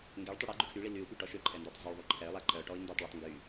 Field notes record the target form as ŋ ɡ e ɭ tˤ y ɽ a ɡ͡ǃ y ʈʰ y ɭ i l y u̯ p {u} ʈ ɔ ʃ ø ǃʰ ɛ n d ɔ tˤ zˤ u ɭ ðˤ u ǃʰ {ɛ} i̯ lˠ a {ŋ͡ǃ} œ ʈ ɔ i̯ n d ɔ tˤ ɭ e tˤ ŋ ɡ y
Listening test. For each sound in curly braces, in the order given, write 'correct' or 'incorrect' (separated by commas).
incorrect, correct, incorrect